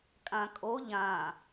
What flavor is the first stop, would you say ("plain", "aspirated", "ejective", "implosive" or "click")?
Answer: ejective